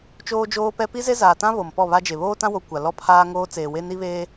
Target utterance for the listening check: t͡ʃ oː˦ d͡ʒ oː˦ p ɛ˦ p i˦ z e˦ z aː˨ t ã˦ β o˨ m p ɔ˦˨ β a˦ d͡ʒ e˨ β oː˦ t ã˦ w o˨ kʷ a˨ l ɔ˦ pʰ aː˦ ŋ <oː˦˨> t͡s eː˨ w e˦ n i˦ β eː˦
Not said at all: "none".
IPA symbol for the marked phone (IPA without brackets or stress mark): oː˦